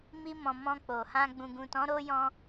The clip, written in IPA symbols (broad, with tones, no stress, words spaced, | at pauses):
mi˧mɔ̃˨ mɔ̃˧k͡po˨hã˧ ɡ͡bũ˨ɡũ˨tɔ̃˨˦ɾo˧ jɔ̃˧